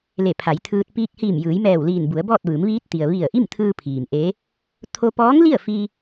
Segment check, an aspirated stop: present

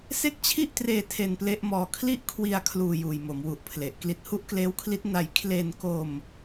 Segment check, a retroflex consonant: absent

